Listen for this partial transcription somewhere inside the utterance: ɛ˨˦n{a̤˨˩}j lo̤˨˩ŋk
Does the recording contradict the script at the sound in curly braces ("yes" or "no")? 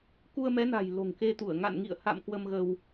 no